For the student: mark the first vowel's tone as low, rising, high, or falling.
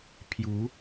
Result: rising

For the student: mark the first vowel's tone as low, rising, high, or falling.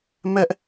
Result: high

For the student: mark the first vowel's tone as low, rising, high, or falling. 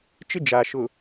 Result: high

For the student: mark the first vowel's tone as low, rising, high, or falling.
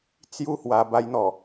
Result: falling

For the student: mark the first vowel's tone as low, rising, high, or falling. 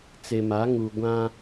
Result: low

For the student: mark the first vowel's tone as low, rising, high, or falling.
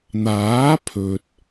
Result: rising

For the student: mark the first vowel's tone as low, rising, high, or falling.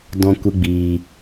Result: high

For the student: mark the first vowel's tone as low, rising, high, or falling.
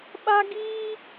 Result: high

